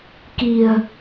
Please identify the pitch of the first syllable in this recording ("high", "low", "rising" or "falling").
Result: low